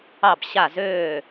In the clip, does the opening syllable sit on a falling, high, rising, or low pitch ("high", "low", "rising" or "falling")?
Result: falling